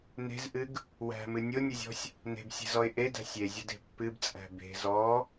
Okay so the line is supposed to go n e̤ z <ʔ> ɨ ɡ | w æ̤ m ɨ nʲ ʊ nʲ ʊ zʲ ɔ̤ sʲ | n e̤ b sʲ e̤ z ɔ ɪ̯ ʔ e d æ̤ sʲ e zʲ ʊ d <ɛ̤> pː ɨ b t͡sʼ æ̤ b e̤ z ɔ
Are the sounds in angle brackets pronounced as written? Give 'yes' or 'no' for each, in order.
yes, no

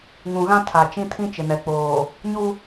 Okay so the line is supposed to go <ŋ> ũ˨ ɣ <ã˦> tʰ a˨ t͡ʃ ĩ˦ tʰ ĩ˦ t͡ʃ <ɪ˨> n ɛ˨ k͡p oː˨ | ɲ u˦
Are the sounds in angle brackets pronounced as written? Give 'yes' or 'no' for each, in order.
yes, yes, yes

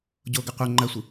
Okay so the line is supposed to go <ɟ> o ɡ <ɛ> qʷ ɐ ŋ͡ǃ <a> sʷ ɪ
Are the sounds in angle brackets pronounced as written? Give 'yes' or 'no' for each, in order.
yes, no, no

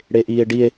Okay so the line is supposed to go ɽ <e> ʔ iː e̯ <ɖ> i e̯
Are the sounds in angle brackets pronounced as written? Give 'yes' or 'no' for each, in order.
yes, yes

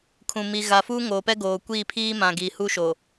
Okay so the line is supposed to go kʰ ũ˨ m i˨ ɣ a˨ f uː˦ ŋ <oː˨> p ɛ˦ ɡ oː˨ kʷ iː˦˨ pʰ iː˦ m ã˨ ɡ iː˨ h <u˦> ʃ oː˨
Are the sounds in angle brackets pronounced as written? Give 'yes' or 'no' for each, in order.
yes, yes

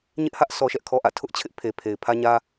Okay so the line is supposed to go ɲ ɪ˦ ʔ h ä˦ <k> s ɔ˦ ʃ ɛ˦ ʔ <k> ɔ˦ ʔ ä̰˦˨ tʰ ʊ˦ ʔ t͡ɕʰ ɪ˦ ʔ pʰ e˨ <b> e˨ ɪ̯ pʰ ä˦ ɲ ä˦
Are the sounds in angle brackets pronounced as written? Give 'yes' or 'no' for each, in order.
no, no, no

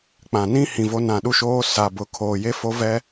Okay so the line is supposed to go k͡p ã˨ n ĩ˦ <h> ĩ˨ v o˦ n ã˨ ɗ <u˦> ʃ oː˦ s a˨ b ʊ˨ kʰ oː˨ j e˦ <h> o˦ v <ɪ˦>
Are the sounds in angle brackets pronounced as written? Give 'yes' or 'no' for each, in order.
yes, yes, no, no

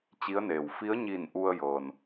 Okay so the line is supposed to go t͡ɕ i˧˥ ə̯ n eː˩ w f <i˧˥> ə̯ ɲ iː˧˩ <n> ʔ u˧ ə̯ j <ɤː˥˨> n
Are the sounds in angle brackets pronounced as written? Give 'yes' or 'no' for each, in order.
yes, yes, no

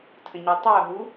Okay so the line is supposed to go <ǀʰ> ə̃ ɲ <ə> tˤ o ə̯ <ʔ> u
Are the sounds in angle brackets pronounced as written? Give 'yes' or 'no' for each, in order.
no, yes, no

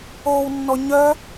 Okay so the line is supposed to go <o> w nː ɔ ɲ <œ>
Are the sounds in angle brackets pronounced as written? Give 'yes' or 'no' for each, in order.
yes, yes

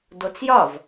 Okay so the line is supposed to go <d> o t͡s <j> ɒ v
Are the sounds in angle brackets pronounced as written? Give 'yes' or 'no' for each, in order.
yes, yes

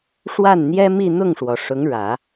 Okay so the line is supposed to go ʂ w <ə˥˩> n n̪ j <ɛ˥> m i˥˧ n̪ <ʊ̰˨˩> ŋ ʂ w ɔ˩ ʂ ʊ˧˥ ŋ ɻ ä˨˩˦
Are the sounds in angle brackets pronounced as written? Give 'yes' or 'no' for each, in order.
no, yes, no

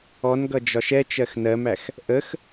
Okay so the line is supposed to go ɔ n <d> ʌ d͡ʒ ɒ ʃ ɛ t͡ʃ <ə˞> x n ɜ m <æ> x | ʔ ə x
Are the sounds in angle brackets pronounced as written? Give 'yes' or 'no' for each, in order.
no, no, yes

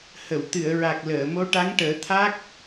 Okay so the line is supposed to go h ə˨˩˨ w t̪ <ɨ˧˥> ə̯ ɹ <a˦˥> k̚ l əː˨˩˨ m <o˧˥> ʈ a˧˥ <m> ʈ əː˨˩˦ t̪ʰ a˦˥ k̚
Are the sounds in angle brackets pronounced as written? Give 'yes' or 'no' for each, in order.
no, no, yes, no

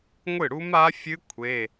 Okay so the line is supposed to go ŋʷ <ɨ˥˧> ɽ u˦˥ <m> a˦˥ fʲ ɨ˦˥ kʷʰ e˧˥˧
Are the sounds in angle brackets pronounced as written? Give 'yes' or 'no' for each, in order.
no, yes

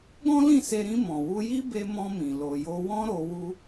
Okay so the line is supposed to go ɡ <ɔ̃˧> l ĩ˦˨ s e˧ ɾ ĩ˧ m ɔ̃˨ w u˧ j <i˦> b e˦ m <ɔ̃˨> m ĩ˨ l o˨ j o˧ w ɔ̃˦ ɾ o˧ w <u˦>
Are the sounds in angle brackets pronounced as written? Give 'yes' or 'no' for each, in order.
no, yes, no, yes

